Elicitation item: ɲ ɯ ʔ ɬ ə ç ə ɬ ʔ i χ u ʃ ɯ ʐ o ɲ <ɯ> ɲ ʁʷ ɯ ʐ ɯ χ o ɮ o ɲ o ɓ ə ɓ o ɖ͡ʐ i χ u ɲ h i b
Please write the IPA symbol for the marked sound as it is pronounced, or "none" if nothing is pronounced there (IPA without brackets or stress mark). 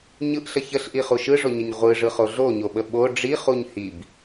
ə